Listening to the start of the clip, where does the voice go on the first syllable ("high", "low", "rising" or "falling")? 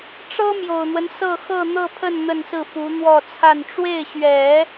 high